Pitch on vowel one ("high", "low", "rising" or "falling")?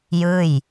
falling